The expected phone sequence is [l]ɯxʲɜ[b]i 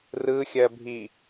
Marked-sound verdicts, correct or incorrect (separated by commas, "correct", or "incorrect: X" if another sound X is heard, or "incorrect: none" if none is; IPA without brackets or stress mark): incorrect: r, incorrect: bʱ